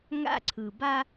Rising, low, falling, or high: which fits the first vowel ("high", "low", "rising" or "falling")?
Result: high